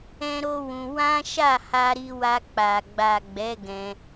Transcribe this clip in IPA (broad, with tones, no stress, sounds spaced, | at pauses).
ɛ̃˦ ɾ o˦ w ũ˧ w ã˦ ʃ a˦˨ h a˧ ɾ i˧ w a˧ k͡p a˨ ɡ͡b a˨ ɡ͡b ɛ˨˦ ɡ ɛ̃˧